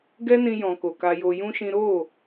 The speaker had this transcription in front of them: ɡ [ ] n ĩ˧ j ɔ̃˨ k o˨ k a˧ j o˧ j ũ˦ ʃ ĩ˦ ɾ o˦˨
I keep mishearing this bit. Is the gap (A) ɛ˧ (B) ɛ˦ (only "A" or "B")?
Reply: B